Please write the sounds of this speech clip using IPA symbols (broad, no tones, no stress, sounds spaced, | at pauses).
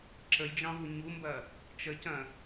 ǁ ə j d͡ʒ ɑ̃ v u ɲ u m b ɐ | t͡ʃ ə c ɐ̃